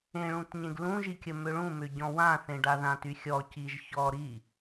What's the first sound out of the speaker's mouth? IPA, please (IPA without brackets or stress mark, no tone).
ẽ